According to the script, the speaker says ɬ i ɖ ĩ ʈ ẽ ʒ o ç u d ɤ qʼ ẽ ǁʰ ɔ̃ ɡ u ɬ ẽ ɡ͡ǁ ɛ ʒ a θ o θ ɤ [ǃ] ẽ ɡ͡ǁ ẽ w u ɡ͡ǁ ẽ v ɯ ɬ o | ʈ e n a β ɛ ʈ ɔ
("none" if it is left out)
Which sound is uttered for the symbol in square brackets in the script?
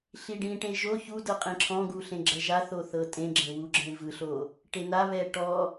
tʼ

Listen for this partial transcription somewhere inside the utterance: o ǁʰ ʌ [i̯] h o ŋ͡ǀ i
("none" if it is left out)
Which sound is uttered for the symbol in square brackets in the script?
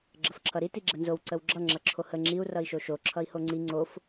i̯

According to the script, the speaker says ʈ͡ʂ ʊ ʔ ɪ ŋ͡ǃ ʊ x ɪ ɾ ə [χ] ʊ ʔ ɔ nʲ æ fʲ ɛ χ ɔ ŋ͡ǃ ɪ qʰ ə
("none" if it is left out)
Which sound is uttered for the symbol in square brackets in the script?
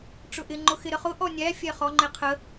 χ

